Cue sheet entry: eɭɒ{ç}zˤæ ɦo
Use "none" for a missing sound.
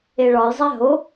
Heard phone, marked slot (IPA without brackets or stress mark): j